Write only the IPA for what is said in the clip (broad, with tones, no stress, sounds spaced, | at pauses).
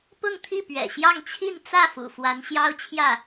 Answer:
p ʊ˥˧ ŋ t̪ʰ i˥˩ p ɥ ɛ̰˨˩ ɕ j ɑ˥˧ ŋ t͡ɕʰ i˥˧ n t͡s ä˥˩ f ṵ˨˩ f w a˧˥ n ɕ j ɑ˥ ʊ̯ t͡ɕʰ j ä˥˩